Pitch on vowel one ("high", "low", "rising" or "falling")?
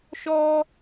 high